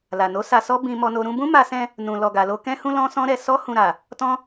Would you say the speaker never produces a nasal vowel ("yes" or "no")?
no